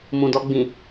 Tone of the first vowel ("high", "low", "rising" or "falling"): low